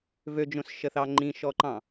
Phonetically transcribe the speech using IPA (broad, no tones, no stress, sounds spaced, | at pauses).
v ø d͡ʒ õ s ʃ ə θ ɑ ŋ͡ǃ ĩ ʃ ɔ ǃ ɑ̃